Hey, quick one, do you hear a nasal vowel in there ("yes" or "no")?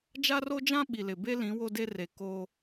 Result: yes